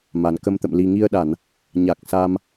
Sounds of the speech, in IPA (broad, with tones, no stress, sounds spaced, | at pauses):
m a˨˩ n k ə˧ m t̪ ə̰˧˨ m l i˨˩ ŋ i˧ ə̯ ɗ a˧˩˨ n | ɲ a˨˩ k̚ s a˧ m